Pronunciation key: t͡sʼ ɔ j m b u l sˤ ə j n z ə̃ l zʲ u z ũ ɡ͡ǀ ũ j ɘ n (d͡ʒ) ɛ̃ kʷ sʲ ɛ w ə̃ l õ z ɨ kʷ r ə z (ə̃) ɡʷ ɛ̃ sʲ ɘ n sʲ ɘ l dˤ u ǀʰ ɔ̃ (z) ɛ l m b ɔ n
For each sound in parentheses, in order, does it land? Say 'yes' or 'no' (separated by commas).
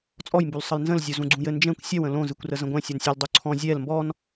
yes, yes, no